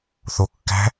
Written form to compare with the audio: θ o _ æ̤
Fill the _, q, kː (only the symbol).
kː